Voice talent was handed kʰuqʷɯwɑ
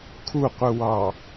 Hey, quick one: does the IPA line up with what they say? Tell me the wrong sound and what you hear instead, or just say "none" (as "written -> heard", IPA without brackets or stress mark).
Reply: none